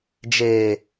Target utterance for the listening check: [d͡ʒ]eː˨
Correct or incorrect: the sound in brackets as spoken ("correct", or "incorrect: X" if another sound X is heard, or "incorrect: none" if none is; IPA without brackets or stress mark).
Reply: correct